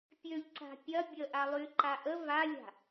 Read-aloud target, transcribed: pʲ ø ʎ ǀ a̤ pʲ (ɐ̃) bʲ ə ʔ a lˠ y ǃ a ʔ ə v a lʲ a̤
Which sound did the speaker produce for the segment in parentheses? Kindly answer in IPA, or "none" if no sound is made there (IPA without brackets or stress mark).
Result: ɐ